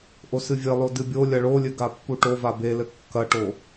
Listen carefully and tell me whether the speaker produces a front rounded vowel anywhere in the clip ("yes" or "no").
no